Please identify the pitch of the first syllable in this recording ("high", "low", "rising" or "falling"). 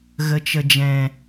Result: low